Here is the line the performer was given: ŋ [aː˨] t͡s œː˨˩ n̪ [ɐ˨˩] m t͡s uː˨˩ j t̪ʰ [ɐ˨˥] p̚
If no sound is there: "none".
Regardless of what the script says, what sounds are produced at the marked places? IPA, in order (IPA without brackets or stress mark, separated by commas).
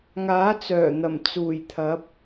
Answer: aː˨˥, ɐ˨˩, ɐ˨˥